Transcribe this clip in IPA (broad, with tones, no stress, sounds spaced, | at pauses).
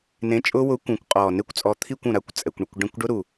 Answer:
n ẽ˨˥ t͡ʃʼ ʊ˦˥ w ʊː˨˥ kʷ ũ˨˩ kʷ qʼ ɔː˨˩ n ɪ˦˥ kʷ t͡sʼ ɔ˨˥ t̪ʰ i˦˨ kʷ ũ˨˩ ɾ a˦˨ kʷ t͡sʼ ɛ˨˩ kʷ ɳ ɪ˦˨ kʷ ɖ ɛ̃˦˨ kʷ ɖ ʊ˦˥ ɾ u˨˩